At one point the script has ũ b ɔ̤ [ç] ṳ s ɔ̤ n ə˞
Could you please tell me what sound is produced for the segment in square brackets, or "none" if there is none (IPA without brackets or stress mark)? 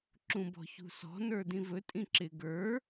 ç